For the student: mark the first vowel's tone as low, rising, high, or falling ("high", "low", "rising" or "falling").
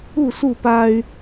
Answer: falling